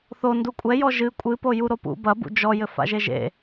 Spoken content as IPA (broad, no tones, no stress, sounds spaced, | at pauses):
θ o n d u kʷʼ ɛ j ɔ ʒ ɨ kʷʼ ɨ p o j u ɾ o p ṵ b ɐ b ṵ d͡ʒ ɔ j ɘ f a̰ ʒ e ʒ ḛ